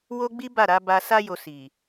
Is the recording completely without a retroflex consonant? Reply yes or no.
yes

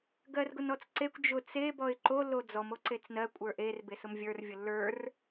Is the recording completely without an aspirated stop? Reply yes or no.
yes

